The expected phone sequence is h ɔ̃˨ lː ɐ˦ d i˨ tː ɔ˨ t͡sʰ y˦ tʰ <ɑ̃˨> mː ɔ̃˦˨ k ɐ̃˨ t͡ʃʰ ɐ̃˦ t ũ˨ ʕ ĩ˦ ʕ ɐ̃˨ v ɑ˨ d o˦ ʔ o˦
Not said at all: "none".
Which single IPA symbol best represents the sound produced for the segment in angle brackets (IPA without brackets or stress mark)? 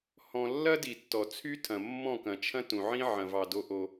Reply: ɐ̃˨